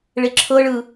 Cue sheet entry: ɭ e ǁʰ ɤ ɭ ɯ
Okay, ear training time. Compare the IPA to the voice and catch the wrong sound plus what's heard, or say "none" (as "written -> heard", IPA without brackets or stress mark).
none